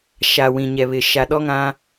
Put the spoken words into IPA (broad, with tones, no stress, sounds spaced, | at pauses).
ʃ a˨ w ĩ˨ ɲ ɛ˨ β ɪ˨ ʃ a˨ ɗ ɔ˦ ŋ ã˦